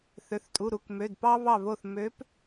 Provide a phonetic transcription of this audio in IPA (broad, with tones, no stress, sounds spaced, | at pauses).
θ ø˩˧˩ θ tʼ u˩˧˩ ɾ u˩˧˩ k m ø˩˧˩ d p ɑ˦ β ɑ˧˩ β o˧˩ θ m ø˨˦ p